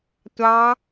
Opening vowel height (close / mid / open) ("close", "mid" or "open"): open